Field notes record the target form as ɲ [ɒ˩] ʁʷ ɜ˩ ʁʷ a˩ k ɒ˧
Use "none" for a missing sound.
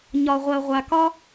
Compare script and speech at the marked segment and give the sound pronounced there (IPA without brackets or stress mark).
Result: ɒ˩